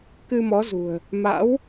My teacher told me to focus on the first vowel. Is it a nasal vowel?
no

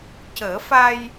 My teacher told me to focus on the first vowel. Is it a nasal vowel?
no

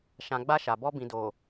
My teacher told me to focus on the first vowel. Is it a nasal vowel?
yes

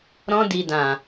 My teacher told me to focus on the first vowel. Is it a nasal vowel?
yes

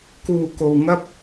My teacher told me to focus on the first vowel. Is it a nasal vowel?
no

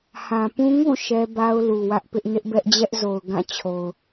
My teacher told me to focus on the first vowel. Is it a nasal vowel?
yes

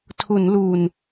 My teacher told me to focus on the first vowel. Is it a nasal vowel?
no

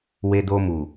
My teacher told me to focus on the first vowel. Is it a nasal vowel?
no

